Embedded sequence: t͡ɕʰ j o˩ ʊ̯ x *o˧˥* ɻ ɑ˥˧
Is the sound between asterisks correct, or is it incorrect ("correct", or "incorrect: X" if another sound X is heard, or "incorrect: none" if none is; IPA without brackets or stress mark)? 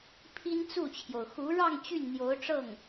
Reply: incorrect: u˧˥